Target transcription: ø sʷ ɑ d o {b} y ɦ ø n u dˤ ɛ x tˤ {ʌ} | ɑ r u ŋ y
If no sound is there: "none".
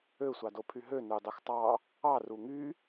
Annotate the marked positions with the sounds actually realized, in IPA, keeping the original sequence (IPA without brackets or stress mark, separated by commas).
pʰ, ɑ